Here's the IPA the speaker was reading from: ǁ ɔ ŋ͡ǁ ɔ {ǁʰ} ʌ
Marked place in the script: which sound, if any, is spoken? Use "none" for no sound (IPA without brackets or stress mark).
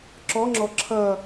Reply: ǁʰ